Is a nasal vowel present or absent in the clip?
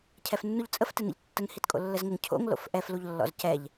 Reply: absent